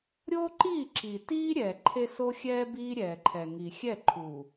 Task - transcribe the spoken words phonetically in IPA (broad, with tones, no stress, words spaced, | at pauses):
ɾʲo˦ǃiː˦˨ǁi˨tiː˦ ɾʲɛ˨ ǃʰe˦so˦xʲɛː˦ biː˦ɾʲɛː˨ǃʰɛ˨ ŋi˨xʲɛ˦˨ǃʰu˨